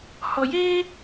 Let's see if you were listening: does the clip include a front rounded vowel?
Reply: no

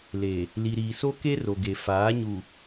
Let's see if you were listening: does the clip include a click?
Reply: no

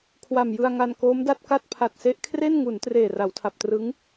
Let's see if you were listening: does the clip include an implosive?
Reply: no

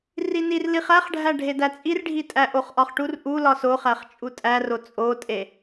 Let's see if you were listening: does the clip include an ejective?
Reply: yes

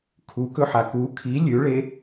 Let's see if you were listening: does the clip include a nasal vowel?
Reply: no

